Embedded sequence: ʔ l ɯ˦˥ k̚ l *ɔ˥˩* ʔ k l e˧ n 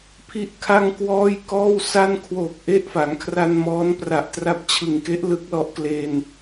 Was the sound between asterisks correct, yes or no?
no